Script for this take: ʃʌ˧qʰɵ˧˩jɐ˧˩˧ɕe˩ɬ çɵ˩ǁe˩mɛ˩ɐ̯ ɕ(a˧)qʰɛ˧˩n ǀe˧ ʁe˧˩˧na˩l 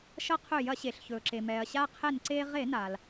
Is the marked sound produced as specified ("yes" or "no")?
yes